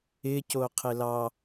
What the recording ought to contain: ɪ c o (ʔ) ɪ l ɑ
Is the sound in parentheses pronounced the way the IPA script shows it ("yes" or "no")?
no